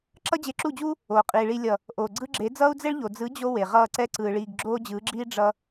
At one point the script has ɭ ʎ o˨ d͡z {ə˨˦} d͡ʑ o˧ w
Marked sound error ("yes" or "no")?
yes